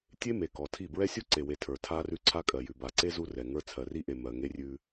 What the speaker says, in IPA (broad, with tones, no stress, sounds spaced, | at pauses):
tʲ e˦ m e˨ k ɔ˨ tʰ i˦˨ b ɹ ɛ˦ sʲ u˦ ǀ e˨ w e˨ tʰ ə˞˨ tʰ a˦ r ʉ˦ ǀʰ a˦ kʼ ɜ˨ j ʉ˨ b a˨ ǀ e˦ z u˦ r ɛ˨ ŋ ə˞˦ t͡sʰ ɜ˨ r i˦ ʔ e˨ m ɜ˨ ŋ e˦ rʲ ʉ˦